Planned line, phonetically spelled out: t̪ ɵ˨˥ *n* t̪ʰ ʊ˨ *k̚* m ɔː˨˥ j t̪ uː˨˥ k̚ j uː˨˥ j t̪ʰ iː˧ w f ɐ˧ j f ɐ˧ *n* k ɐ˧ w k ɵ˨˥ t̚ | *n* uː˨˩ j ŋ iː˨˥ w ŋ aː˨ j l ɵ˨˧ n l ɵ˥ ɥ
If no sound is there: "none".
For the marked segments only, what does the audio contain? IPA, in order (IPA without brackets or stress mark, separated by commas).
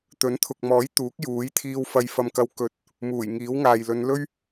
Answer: n, k̚, m, m